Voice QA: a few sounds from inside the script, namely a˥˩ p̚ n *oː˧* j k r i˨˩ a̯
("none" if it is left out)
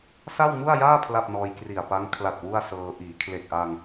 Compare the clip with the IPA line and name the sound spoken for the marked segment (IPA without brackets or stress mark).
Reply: ɔː˧